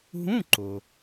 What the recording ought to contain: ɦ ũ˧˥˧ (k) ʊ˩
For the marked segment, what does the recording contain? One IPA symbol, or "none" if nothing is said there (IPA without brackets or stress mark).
ǃ